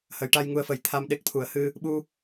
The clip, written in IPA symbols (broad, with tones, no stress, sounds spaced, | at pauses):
h ə˨˩˦ j ʈ a˧ j ŋ u˧ ə̯ f ə˨˩˦ j t̪ʰ a˧ m ɗ e˦˥ k̚ t̪ʰ u˨˩˦ ə̯ h ɨ˧ | ɓ u˧